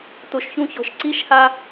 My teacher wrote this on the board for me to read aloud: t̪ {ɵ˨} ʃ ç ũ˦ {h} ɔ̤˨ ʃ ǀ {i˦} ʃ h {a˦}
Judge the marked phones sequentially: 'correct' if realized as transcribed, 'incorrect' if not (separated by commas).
incorrect, incorrect, correct, correct